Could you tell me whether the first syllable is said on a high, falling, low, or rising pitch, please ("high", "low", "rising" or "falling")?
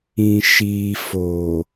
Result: low